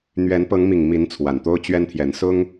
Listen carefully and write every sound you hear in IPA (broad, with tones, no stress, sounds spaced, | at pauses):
n̪ ɥ ɛ˨˦ n p ɤ˨˦ ŋ m i˨˩ ŋ m i˨˦ n t͡sʰ w a˨˩ n t̪ o˦ ʊ̯ t͡ɕ ɥ ɛ˦ n t̪ʰ j ɛ˨˦ n s ʊ˦ ŋ